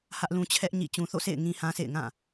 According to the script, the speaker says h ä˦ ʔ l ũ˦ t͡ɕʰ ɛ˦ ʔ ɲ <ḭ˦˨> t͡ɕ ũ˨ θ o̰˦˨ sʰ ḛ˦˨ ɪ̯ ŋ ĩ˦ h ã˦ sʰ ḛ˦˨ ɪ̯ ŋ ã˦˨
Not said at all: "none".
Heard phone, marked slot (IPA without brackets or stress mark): ḭ˦˨